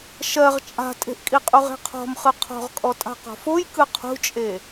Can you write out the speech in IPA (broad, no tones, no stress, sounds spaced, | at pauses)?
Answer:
ʃ ɜ ʁ t͡ʃʼ a̤ tʼ e̤ ʔ kʼ i qʼ u ʁ e̤ qʰ ɔ̤ m χ ɯ qʰ ɔ̤ ʁ kʼ ɔ tʼ a̤ q ɔ̤ f o j k ɯ qʰ ṳ t͡ʃʼ e